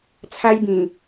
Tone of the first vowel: high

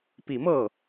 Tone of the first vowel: low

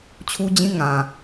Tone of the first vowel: high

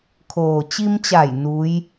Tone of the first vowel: low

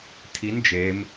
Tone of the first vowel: rising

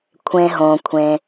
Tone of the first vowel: low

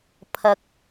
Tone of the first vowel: high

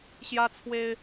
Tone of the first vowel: high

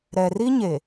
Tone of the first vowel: low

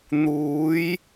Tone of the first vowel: rising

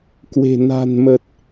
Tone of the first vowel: low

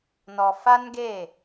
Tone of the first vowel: low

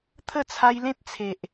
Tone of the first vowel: falling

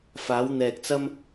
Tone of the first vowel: rising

